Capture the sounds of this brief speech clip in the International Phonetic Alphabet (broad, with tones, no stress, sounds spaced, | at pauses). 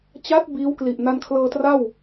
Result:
t͡ɕ a˦˥ t̚ b iː˦˥ w k l i˨˩ ʔ n a˧ n kʰ l ɤː˧ t r a˥˩ w